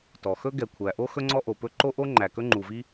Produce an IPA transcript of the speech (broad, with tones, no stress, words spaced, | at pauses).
tɔ˩xɵ˥ ɡɛ˩kʷʰæ˩ʔo˥ xɵ˥ŋ͡ǀɔ˥ʔo˩pɵ˥ ǃo˥ʔo˥ ŋ͡ǃæ˩kɵ˥ŋ͡ǃu˩vi˥